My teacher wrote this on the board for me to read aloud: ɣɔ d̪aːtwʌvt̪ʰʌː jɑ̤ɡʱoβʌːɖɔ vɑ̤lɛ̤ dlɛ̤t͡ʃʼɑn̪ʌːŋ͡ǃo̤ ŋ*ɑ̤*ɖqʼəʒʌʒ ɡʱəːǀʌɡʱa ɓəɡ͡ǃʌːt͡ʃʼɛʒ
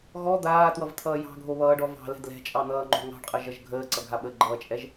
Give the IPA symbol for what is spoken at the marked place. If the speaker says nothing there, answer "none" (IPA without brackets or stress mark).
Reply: ɑ̤